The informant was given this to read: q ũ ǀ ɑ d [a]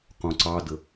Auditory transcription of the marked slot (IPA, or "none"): ə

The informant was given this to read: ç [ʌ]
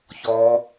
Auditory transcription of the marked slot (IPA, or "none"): ɔ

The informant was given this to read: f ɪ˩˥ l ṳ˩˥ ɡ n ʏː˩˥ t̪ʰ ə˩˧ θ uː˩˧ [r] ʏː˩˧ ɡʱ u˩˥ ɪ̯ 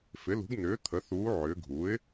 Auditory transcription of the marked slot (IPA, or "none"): ʕ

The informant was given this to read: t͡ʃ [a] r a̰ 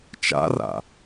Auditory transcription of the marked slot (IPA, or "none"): a̰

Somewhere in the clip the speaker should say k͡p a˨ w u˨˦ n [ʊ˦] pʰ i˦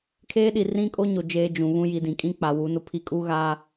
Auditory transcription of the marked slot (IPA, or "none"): ʊ˦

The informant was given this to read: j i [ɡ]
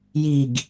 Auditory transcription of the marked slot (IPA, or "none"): ɡ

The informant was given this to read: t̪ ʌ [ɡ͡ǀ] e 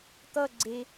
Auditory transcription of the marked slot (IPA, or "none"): ɡ͡ǀ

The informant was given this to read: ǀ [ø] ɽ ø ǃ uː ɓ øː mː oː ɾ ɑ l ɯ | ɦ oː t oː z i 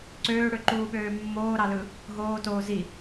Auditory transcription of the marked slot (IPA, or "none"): øː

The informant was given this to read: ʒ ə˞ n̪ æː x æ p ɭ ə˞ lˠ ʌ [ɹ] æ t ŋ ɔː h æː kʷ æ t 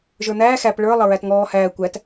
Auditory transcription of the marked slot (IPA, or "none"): ɹ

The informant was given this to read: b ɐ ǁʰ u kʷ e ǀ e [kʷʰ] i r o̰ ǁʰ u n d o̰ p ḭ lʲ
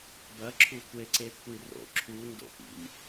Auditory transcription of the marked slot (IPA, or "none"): kʷʰ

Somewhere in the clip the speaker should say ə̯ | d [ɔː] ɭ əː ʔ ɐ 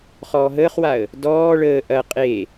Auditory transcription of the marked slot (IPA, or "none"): ɔː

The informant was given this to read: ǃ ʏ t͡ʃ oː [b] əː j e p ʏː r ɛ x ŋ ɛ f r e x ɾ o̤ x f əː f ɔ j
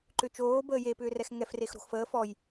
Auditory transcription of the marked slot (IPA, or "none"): b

